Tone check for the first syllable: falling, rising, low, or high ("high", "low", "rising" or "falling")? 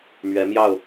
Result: rising